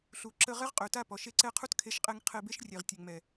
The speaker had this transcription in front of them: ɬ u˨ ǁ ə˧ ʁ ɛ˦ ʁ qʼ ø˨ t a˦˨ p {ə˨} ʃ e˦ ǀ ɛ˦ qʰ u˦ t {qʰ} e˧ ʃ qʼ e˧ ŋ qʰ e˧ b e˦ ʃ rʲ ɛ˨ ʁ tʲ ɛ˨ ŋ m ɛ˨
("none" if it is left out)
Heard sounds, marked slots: ɔ˨, kʰ

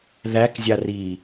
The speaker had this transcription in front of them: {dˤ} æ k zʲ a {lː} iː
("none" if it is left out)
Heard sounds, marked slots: ð, r

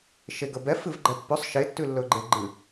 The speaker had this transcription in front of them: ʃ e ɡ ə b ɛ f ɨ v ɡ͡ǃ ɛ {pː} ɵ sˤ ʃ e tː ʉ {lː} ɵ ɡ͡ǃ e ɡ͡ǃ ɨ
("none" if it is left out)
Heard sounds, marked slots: pː, lː

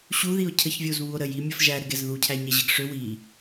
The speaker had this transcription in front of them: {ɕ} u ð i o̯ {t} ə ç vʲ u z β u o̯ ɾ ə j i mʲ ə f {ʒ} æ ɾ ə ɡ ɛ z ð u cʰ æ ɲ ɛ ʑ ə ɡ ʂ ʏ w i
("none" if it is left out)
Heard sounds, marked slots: ɕ, cʰ, ʒ

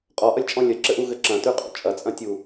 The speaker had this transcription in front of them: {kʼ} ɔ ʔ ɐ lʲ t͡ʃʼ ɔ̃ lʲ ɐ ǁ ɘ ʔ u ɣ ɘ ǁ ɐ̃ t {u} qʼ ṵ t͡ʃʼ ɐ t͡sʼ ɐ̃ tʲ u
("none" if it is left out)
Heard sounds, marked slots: qʼ, ʉ

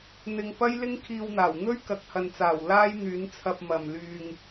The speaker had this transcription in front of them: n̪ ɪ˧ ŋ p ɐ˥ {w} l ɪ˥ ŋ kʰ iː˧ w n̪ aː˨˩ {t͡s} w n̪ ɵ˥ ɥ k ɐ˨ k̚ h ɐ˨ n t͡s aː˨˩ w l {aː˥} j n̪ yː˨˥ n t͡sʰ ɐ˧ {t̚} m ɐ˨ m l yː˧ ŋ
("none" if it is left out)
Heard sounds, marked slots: j, none, aː˥, p̚

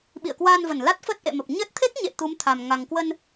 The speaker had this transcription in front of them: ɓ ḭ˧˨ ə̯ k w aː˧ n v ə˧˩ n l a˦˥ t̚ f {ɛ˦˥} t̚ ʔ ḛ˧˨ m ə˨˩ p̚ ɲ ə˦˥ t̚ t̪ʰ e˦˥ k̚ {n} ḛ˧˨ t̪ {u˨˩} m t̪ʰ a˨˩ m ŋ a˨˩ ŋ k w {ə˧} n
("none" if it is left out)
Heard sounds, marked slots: ə˦˥, ɲ, u˨˦, ə˧

